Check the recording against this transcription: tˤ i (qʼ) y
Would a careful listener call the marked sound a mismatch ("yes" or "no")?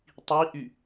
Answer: yes